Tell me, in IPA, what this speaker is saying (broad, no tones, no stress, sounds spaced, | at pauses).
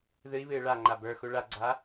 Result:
ð ɨ i̯ β ɨː ɭ a ŋ͡ǃ a b ə˞ x u ɭ a ɡ͡ǀ a